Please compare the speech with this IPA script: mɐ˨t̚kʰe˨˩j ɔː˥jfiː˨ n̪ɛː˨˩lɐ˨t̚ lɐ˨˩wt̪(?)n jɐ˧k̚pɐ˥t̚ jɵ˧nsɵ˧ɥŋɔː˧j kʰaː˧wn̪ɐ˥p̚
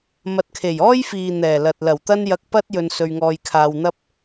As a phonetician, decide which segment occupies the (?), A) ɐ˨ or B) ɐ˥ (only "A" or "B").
B